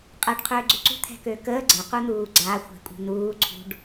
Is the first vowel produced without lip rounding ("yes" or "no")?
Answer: yes